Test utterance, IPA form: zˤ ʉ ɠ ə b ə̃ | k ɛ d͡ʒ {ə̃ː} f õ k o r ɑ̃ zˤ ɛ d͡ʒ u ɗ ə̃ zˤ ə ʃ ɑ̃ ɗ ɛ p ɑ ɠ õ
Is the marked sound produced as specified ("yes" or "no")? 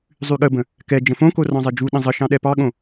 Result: no